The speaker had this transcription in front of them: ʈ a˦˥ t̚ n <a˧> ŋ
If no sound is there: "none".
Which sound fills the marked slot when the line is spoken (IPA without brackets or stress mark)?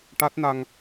a˧